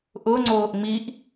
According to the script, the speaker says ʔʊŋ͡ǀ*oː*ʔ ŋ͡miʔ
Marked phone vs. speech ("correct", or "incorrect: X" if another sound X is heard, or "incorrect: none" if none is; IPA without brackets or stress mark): correct